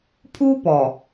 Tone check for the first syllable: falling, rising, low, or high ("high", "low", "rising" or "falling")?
high